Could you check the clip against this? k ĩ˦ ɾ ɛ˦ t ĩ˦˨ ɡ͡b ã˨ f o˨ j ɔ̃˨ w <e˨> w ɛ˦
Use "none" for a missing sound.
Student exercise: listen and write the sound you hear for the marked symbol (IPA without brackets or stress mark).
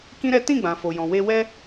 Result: e˧